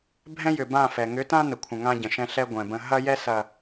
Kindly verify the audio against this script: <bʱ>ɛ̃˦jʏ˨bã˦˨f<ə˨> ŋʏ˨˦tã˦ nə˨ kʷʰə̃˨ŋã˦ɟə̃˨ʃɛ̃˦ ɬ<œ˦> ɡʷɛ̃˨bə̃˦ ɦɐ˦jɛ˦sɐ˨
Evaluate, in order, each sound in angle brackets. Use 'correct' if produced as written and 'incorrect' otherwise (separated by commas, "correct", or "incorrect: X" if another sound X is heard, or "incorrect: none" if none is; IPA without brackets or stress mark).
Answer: correct, incorrect: ɛ˨, incorrect: ɛ˦